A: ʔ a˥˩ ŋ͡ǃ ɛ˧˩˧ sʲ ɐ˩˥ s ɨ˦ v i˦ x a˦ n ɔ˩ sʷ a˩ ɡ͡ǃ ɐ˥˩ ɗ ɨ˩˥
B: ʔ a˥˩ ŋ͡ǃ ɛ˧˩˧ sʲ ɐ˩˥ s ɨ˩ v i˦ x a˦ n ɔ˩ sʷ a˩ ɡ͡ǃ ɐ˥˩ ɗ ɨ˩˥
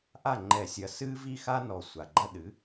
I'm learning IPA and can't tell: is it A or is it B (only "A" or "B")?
A